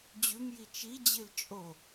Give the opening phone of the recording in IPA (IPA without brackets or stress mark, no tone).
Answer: d͡ʑ